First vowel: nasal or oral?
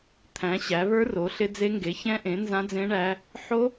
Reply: nasal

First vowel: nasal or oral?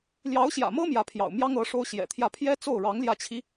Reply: oral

